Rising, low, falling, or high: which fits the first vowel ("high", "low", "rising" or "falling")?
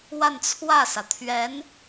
falling